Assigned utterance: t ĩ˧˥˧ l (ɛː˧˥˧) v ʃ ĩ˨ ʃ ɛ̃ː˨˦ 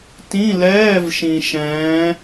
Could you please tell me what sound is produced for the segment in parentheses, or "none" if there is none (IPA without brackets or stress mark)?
ɛː˧˥˧